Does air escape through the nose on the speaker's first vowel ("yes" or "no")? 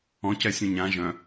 yes